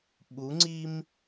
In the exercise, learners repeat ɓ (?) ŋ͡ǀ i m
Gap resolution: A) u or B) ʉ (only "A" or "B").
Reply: A